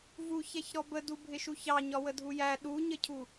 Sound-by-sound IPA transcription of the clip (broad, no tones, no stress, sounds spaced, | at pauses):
v u ç ɛ ç ɾ ɔ b ə d u bʱ ɪ ʃ u ç ɑ ɲ ɒ w ə dʱ u j æ ɗ u ɲ ə cʰ u